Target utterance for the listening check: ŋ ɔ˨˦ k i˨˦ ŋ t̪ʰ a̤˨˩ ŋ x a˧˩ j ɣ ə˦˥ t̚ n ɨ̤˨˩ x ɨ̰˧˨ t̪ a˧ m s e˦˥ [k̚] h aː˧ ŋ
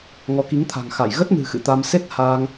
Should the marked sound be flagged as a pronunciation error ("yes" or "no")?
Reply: yes